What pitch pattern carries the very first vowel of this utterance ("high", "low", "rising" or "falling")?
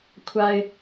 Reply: low